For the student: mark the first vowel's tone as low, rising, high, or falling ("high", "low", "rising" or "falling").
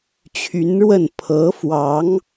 rising